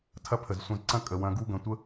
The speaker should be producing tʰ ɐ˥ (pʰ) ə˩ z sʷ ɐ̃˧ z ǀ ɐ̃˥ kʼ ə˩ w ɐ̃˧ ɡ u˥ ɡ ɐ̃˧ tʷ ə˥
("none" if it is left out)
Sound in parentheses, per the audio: pʰ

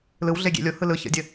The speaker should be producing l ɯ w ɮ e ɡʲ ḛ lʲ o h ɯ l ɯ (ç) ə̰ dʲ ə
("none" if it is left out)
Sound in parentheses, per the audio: ç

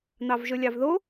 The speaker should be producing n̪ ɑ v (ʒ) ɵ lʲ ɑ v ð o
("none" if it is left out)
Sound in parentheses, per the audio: ʒ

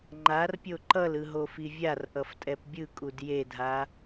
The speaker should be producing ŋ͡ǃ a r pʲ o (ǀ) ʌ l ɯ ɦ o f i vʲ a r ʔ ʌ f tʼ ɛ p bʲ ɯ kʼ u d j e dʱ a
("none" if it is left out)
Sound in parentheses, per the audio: ǃ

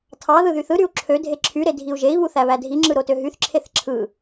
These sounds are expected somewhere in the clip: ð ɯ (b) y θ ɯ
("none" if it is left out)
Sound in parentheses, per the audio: ð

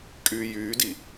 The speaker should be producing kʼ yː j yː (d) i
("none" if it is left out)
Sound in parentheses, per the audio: d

